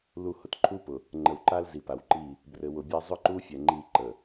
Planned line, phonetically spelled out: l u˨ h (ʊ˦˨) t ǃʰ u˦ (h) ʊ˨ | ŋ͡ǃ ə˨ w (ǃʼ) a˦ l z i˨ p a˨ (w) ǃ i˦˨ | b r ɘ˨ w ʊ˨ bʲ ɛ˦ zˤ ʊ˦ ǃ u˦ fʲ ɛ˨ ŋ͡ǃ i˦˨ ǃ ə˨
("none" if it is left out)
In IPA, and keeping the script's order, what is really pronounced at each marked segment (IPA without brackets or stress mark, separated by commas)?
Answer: ʊ˨, p, ǃ, w